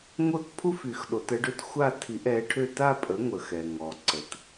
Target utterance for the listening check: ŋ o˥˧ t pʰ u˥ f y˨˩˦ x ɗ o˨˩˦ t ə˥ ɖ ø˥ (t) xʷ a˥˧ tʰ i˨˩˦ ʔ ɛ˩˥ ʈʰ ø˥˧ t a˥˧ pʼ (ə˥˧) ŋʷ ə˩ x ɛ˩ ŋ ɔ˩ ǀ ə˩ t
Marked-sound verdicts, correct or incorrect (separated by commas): correct, incorrect